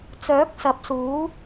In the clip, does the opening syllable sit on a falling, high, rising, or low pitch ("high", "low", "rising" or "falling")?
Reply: rising